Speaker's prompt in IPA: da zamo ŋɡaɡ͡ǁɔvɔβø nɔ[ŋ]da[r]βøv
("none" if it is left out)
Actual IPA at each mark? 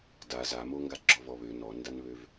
n, n

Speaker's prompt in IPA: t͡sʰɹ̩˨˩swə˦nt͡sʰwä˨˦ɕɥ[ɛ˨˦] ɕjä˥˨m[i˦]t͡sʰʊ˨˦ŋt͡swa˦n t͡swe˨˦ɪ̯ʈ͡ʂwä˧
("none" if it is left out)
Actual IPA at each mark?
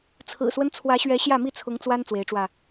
ɛ˨˦, i˥˨

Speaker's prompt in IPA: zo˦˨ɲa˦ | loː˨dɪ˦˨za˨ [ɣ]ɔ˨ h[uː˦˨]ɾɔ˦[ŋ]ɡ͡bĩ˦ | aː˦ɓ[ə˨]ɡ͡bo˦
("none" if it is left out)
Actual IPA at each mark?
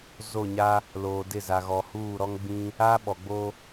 ɣ, uː˦˨, ŋ, ɔ˨

